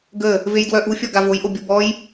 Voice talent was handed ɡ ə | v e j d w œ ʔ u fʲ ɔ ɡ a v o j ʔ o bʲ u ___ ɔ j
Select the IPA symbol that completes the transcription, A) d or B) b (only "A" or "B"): B